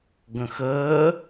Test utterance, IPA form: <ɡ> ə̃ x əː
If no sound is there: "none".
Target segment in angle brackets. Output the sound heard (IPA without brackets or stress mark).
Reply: ɡ